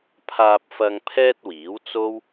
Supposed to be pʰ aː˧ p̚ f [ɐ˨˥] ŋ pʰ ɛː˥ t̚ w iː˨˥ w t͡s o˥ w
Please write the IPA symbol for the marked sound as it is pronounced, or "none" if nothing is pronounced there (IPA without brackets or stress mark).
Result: ɐ˧